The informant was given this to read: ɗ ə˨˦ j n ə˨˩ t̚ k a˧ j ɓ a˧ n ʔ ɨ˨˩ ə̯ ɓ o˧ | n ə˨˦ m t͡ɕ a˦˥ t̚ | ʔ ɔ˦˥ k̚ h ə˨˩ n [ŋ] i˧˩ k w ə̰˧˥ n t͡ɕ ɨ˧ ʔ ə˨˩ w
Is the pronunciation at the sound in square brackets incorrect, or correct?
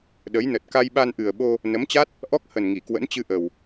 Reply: correct